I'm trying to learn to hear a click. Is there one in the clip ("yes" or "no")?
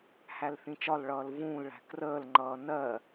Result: yes